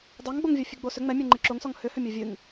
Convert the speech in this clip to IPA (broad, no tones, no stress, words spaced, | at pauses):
dˤɑŋɡ͡boŋvʲɔ fʲɨɡ͡bosʏ ŋ͡mɛ mʲoŋ͡ǃɨǁoŋsɔŋ hʏhʏmʲo vʲɨŋ